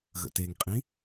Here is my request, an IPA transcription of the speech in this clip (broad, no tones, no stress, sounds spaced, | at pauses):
ɣ ə̰ t e ŋ qʼ ĩ